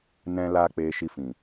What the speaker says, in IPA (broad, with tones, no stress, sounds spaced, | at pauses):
n ɛ̃˦ l a˦ k͡p eː˧ ʃ i˧ f ĩ˨